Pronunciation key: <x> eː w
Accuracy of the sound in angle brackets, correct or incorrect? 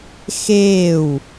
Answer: correct